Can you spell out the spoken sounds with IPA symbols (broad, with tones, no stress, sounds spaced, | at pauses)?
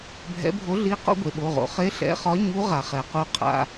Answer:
bʱ ɛ̰˧˥ bʱ o˧˥ ɮ i˧˥ q o̰˧˥ ɡʷ e˩ ɓ o˩˧˩ ʁ o̰˩ χ e˧˥ ɬ ɛ̰˩˧˩ χ ɒ˧˥ ɲ u˧˥ ʁ a˩ χ ɛ˩ q u˧˥ qʰ a̰˩˧˩